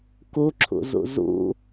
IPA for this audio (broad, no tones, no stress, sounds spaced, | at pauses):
k u ǁʰ ṵ z ṵ z ṵ